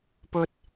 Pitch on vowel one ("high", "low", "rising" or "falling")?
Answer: high